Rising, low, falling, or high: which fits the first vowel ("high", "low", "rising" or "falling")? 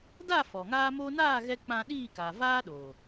falling